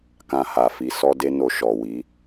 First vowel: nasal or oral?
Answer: nasal